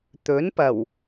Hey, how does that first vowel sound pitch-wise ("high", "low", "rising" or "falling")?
rising